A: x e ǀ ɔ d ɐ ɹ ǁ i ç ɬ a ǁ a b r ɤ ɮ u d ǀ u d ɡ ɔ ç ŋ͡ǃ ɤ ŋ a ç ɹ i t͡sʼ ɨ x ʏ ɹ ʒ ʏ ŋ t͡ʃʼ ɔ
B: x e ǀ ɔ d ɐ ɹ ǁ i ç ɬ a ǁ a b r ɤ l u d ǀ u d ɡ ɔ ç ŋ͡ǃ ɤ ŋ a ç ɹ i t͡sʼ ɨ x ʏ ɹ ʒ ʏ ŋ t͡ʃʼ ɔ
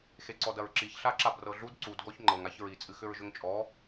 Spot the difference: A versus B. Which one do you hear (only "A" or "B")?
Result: A